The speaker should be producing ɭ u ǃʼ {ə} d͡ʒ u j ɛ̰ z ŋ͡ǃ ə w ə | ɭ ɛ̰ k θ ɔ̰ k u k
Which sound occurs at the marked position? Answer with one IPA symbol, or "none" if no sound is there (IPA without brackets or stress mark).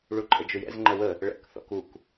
ə